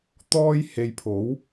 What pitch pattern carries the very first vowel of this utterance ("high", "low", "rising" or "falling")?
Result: high